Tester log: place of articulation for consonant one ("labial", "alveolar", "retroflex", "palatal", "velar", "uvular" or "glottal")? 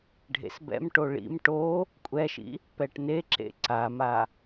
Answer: retroflex